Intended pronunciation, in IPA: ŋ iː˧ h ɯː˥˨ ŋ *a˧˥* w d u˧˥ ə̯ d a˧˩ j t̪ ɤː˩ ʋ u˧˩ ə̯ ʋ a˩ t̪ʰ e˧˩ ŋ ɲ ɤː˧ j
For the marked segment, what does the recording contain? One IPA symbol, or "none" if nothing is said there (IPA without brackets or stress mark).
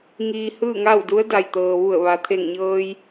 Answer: a˥˨